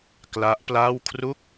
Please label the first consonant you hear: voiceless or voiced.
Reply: voiceless